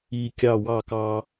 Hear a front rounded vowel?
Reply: no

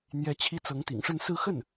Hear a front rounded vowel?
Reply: no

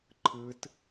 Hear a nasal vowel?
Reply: no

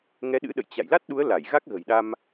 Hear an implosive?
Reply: yes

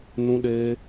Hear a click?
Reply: no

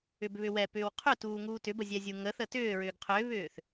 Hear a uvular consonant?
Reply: yes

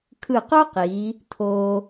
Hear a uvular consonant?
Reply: yes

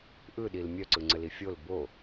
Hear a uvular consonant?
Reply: no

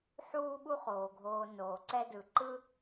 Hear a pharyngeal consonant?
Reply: yes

